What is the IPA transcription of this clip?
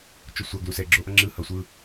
t͡ʃ o sʷ a ɡ l u s ɛ ɡ͡ǁ o ʔ ʌ ŋ͡ǁ ɯ h ʌ sʷ ɯ

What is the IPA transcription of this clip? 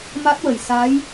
m a˦˥ t̚ w ə˨˩ j s a˧˥ j

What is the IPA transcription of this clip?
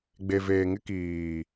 ɡ͡b e˨ v eː˨ ŋ ɪ˦ k iː˨

